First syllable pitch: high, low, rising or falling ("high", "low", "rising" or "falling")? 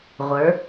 rising